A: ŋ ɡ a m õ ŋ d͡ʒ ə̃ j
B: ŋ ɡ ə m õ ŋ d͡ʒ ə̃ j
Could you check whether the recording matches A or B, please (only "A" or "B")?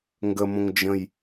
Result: B